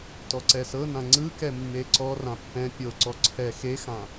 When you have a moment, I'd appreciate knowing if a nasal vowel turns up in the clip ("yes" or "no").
yes